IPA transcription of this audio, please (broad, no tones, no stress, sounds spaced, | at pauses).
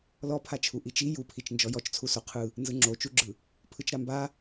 l ɔ pʰ a t͡ʃʰ u ʔ i t͡ʃ i j u pʰ i t͡ʃ n d͡ʒ ɔ j ɔ t͡ʃ t͡sʰ u s o qʰ ɯ | n z ɯ ŋ͡ǁ o t͡ʃ u ɡ͡ǁ ɯ | pʰ ɯ t͡ʃ ɾ a m b a